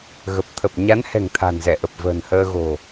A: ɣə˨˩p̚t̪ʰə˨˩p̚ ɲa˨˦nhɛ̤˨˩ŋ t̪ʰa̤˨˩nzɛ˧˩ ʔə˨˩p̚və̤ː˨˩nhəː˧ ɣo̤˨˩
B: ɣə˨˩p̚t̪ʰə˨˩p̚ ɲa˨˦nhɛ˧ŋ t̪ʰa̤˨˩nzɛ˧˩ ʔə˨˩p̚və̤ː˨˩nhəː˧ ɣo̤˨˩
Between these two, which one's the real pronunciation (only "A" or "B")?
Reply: A